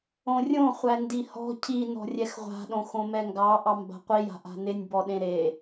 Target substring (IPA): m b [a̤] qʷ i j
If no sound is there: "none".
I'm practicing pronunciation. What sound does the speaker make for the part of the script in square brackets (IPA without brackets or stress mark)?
a̤